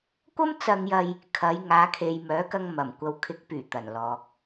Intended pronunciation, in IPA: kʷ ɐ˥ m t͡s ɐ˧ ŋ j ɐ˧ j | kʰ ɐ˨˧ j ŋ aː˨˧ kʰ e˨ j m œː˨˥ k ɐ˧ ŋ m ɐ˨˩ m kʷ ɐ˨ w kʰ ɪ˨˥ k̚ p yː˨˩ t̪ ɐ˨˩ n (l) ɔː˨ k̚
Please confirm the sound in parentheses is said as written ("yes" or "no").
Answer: yes